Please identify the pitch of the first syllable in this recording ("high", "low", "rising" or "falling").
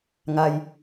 low